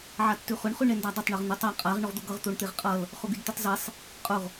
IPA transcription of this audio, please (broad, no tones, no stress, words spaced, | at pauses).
ʕatːʉχʊɳ χʉɳendadˤʊtˤ ɳʌʁn̪ʉtˤa qʼaʁ ɳʊʁd̪ʊɡʌʁ t̪oɳt̪eʁqʼʌl | χʊɡydt̪ʉtˤzesˤ | qʼʊʁ